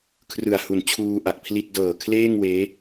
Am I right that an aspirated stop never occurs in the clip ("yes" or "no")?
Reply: no